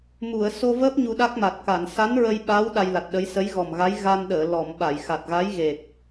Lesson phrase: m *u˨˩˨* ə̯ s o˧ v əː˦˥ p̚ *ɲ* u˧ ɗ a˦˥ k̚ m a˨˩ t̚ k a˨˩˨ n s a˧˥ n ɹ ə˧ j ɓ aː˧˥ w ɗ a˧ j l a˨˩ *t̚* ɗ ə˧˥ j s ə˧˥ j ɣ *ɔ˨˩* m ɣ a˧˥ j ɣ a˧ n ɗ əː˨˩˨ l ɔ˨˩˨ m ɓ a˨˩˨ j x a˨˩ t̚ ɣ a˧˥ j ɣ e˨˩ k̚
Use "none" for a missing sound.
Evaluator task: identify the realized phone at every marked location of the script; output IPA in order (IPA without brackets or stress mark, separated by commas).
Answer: u˨˩˨, ɲ, t̚, ɔ˨˩